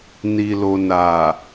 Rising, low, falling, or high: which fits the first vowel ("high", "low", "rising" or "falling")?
low